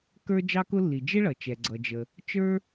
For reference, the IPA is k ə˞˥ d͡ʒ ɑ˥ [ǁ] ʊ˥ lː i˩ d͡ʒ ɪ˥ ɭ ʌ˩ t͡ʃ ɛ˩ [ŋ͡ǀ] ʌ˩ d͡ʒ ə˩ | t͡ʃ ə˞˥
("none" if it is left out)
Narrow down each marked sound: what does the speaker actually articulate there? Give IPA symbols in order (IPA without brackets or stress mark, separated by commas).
k, ɡ͡ǀ